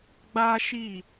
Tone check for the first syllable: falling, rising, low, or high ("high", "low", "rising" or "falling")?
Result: high